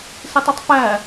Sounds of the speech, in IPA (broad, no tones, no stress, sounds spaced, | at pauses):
s ɪ tˤ u tˤ f æ